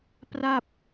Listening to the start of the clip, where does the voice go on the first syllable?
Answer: falling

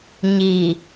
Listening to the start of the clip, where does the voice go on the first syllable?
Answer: low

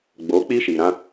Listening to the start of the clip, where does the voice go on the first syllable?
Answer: rising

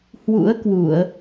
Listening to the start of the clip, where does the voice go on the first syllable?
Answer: rising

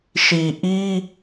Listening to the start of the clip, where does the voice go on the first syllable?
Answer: low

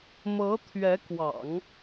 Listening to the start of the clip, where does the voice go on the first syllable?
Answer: rising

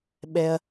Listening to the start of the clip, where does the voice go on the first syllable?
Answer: high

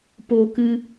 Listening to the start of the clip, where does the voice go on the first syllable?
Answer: high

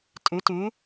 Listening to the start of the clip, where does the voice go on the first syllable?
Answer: rising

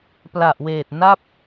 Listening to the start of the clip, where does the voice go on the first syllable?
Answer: low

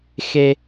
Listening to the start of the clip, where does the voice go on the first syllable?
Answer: high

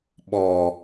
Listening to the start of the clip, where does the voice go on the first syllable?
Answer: low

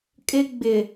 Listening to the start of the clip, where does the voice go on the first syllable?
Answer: high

